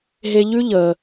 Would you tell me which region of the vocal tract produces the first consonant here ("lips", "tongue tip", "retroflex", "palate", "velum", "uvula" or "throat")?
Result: throat